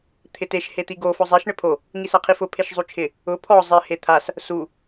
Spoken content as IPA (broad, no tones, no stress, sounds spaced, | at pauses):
t̪ʰ ɪ t e ʃ h e t̪ i ɡ o f ʊ zˤ ɛ ʃ ɳ ɪ pʰ o | ŋ i s a qʰ i f ʊ pʰ e ʃ zˤ u t͡ʃʰ ɪ | ʊ pʰ ɔ zˤ ɪ h e t̪ʰ a s | s u